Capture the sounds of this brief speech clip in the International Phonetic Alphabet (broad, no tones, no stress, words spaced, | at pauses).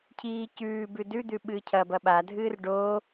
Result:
cʰiː cʉːbʉ dʉd̪ʉ ɓɨːcʰɐbɐ ɓadʱɨːr ɖo